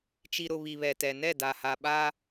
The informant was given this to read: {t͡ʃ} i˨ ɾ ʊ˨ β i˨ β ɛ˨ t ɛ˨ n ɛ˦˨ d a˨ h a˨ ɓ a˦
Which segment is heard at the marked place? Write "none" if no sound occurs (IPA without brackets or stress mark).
t͡ʃ